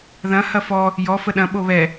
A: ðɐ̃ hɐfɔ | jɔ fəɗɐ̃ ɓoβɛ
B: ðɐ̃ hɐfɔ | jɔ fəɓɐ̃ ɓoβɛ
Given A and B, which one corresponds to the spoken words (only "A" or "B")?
A